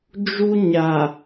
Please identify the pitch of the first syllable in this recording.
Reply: high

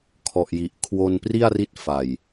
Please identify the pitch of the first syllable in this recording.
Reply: low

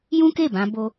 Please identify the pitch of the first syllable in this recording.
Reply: high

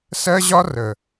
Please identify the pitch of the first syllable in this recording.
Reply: high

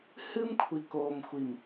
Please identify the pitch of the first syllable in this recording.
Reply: high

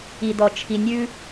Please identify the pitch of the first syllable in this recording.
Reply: low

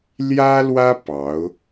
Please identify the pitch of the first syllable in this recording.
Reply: high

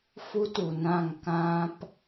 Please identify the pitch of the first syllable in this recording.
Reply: high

